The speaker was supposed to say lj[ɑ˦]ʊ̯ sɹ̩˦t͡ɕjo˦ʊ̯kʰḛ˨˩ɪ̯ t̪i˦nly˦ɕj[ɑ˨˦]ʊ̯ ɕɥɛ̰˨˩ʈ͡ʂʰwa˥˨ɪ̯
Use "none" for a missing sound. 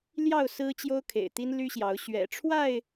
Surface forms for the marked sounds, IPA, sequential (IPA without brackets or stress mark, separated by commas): ɑ˥˨, ɑ˨˦